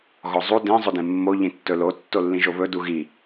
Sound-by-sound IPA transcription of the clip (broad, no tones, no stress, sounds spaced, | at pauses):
ɣ ɔ zˤ u d ẽ zˤ ɵ d ẽ mː o ʎ ĩ tː ɵ l o tː o lː ĩ ʒ o β ɵ d u ɣ i